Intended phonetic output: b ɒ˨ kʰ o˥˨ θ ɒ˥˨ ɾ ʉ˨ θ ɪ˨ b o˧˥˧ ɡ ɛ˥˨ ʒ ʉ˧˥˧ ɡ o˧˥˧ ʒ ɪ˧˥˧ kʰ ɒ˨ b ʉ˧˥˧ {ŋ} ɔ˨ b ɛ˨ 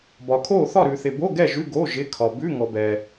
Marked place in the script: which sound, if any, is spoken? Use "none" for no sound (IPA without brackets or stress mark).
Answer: ŋ